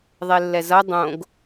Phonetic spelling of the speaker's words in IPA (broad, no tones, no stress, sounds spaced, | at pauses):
ðˤ e lː ɛ z ʌ dˤ õ ɡ